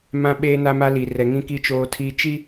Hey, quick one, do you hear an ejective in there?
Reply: no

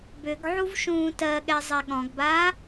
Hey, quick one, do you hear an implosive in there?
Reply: yes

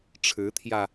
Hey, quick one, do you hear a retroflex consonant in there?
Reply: yes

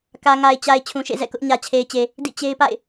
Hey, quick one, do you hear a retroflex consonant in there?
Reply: no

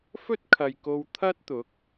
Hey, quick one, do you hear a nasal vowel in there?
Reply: no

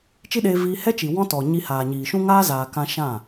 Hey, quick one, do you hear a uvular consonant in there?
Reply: no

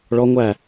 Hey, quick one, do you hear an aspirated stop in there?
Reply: no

